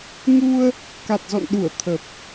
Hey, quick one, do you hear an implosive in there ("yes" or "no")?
yes